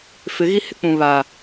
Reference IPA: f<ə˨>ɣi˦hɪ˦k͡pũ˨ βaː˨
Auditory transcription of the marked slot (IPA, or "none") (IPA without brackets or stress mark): ɪ˨